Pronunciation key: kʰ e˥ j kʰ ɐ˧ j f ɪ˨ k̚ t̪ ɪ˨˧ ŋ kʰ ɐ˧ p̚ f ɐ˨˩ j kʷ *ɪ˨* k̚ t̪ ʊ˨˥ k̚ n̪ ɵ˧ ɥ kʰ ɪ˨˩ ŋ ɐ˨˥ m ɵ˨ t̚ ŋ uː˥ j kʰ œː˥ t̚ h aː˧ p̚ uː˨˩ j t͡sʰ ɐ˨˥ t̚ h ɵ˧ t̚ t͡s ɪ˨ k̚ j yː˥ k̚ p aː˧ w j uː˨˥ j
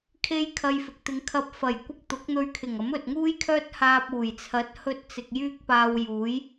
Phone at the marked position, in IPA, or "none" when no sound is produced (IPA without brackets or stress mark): ɪ˥